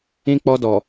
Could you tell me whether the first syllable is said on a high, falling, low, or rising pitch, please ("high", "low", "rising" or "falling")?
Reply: high